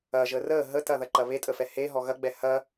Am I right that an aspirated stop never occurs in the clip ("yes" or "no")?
yes